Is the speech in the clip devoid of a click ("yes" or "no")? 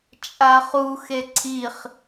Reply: no